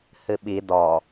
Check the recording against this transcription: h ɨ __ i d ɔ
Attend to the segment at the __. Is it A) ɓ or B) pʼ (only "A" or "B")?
A